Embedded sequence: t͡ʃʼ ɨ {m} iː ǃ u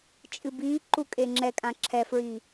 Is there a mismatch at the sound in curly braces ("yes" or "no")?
yes